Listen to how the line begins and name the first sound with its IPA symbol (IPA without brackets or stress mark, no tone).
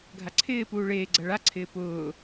ɡʱ